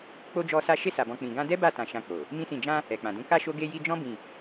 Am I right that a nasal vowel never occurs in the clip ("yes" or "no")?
no